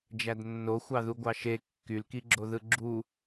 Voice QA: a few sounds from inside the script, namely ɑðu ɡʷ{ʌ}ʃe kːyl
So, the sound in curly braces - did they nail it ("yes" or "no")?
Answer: no